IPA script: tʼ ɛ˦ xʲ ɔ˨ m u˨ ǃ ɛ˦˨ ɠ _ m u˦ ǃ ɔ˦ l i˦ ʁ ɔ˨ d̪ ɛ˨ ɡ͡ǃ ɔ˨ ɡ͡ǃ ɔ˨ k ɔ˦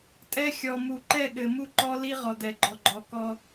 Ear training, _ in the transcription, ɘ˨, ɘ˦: ɘ˨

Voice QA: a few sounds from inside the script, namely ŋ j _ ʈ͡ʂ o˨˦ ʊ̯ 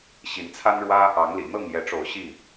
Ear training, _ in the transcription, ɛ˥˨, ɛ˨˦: ɛ˨˦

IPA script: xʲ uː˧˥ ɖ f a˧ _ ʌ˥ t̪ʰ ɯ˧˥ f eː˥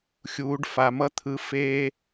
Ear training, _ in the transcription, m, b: m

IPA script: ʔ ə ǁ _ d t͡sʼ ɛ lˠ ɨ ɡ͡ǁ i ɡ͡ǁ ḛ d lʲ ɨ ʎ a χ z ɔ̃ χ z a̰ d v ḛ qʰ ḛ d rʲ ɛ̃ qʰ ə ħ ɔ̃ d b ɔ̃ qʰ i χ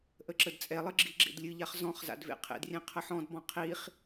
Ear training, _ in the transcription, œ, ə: ə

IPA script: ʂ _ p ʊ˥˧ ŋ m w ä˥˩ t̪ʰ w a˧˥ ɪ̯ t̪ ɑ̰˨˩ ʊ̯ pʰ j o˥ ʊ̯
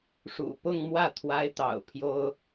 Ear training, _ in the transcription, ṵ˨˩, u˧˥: ṵ˨˩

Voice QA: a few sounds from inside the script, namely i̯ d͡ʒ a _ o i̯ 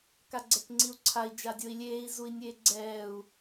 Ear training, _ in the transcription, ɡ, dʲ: dʲ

